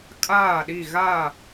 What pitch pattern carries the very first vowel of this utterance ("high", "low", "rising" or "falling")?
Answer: falling